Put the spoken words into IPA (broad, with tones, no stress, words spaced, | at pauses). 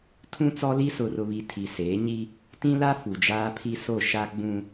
tʰũ˦t͡sɔ˦li˦ sʊ˨rʊ˨βi˨ tʰi˨seː˨˦ ɲi˦ | tĩ˦la˦ fu˨d͡ʒaː˦pʰi˦ so˦˨ʃa˦ ɡ͡bũ˦